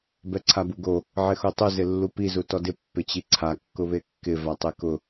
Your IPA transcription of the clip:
b ɛ ǀʰ a b u ɡ o | ʕ ɪ x o tˤ u z ɪ lː u p i z u t ɔ d ɪ pː ɪ t͡ɕ i ǀʰ a kː ʊ β e kː ɪ v a tˤ e k ʊ

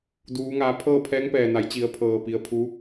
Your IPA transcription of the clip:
d uː˩˧ ŋ aː˩˧ pʰ ɤː˥˨ pʰ ɛː˧˥ ŋ p ɛː˩ n a˩˧ j t͡ɕ i˩˧ ə̯ pʰ ɤː˩ p i˩˧ ə̯ pʰ u˧˥

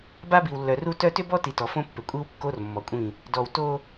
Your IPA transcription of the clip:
b a˦ b i˨ w lː œ˨ r u˦ t œ˦ t ʏ˦ b ɔ˦ t i˨ t ɔ˨ f õ˦ pː ʏ˨ kʷʼ i˦ w kː o˦ r mː ɔ˨ kʷʼ ĩ˦˨ | d ɔ˨ w t o˦

